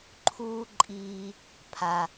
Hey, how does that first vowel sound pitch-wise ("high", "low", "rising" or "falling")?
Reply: high